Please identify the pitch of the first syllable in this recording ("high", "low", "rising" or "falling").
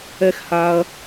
high